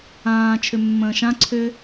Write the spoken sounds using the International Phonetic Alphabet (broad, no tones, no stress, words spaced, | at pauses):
ãː t͡ʃʰʏmːə̃ːʃã ǀʰʏ